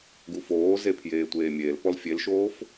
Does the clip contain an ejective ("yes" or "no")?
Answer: no